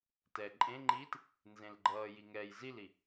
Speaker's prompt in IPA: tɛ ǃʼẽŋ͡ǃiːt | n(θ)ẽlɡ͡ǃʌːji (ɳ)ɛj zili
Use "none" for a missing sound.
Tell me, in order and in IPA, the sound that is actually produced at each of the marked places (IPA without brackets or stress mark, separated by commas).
z, ŋ